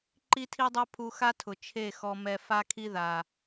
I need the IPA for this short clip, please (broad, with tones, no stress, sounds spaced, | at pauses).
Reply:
ǃ i˦ tʰ i˦ dˤ ɛ˦ pʰ u˧ x a˦ tʰ ʊ˨ t͡ʃʰ e˦˨ x ɔ˧ m ɛ˧ f a˦ kʰ i˦ ð a˨